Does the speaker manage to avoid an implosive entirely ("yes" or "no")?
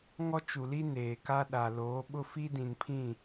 no